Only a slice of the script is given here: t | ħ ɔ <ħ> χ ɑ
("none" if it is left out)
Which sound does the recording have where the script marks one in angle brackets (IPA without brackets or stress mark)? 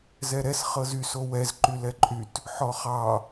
none